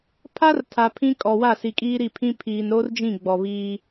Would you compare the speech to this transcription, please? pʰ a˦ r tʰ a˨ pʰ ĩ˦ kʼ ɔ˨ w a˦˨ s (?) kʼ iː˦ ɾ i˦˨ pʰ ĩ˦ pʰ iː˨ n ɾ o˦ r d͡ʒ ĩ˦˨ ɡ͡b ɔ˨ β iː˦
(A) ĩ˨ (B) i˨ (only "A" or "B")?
B